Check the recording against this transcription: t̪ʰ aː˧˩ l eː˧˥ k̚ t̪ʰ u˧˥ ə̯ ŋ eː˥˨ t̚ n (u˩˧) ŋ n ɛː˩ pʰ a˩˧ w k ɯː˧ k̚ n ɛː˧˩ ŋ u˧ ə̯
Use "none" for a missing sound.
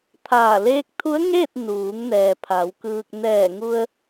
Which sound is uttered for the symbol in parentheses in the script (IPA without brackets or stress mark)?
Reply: uː˩˧